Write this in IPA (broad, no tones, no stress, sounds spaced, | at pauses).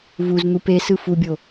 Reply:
v u z n̪ u p e s ɯ f u bʲ o